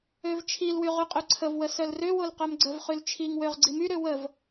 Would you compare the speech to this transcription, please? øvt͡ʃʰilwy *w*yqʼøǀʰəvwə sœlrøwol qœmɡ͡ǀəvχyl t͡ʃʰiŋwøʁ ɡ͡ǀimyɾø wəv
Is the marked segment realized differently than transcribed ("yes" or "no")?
yes